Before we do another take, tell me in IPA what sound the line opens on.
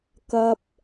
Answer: k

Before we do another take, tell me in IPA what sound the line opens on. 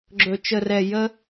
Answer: ɡ͡ǁ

